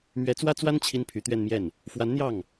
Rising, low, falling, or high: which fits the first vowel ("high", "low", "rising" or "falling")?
rising